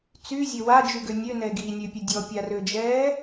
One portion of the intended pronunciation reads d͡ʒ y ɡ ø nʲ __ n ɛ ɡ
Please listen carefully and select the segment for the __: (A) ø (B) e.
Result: A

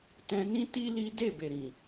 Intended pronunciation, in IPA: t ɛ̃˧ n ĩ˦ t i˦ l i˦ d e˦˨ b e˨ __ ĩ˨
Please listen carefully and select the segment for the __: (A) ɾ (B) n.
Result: A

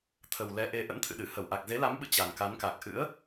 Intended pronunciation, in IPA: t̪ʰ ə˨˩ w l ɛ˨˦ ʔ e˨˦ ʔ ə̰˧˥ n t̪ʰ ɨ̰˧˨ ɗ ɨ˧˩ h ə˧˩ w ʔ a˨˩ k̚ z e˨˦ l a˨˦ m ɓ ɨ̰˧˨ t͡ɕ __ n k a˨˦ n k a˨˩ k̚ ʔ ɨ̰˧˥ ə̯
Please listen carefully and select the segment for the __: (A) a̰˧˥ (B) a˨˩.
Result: B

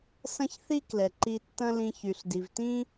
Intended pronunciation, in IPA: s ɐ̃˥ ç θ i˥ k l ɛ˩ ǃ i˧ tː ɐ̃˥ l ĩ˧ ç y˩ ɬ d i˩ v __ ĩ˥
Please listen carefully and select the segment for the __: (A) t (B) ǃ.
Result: A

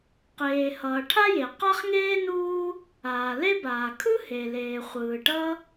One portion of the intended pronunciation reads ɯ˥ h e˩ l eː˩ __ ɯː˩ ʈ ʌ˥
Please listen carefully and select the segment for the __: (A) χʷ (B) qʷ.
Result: A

